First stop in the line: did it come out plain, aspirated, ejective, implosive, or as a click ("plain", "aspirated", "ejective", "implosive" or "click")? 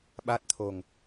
implosive